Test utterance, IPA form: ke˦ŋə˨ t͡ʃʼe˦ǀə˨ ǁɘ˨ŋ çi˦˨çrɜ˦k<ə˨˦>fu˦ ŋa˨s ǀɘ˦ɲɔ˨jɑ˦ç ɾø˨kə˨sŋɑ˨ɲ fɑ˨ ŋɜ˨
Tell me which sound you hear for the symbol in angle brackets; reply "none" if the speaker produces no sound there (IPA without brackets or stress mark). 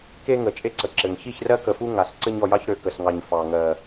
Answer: ə˨